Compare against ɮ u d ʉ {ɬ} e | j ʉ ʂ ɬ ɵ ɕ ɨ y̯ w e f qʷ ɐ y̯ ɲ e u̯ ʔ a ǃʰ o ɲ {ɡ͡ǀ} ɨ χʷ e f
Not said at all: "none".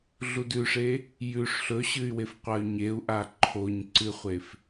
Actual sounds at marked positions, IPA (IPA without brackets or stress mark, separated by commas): ʂ, ǀ